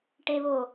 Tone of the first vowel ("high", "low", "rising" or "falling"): low